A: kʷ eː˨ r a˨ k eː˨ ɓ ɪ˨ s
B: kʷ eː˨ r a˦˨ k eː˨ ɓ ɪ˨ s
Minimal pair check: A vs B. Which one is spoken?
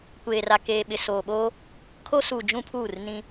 A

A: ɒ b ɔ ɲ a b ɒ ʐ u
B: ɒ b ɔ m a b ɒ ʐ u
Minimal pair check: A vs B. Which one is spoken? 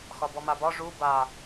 B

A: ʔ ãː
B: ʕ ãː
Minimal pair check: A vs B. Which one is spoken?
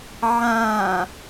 B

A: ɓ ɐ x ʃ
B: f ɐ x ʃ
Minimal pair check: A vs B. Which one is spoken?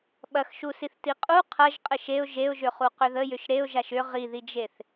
A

